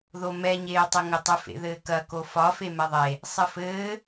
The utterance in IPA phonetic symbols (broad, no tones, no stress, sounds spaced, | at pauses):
ð o m ɛ ɲ eː tˤ ɘ ŋ ə tˤ ɘ f ḛ ð ɘː k ɐ k o f ɒ f e m ɛ ðˤ e | sˤ ɘ f ɘː